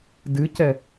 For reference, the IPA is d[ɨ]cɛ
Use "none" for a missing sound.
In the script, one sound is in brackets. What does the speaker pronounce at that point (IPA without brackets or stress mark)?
ɨ